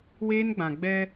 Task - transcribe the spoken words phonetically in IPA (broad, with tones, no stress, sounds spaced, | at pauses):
w eː˦ n ɡ͡b ã˨ ɡ͡b ɛ˦